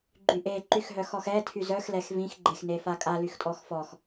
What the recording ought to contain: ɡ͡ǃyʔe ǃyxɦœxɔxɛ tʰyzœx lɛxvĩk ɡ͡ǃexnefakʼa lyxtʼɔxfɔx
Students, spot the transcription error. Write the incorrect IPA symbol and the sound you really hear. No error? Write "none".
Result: k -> x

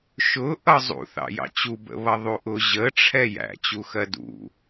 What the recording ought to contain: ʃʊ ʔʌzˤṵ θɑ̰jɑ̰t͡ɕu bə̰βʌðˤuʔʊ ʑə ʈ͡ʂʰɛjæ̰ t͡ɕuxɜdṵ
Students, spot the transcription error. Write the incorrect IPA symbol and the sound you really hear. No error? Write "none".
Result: none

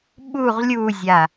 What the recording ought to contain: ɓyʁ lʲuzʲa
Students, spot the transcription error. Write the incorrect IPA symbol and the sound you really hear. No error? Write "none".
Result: y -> u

